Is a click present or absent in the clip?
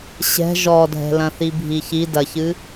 absent